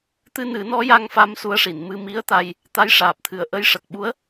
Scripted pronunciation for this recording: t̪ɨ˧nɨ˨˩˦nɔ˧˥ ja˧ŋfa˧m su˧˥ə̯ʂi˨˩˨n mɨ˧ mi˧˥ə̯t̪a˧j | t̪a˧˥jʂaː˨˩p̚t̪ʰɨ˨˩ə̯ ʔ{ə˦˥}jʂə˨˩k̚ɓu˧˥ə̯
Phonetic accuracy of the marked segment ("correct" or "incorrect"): incorrect